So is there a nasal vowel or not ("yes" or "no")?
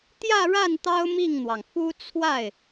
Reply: no